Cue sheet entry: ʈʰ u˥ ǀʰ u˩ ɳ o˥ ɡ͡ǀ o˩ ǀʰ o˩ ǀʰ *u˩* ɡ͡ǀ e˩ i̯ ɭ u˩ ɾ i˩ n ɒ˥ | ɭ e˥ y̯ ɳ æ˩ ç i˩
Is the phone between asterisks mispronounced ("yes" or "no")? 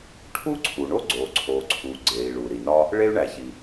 no